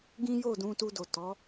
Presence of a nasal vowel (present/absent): present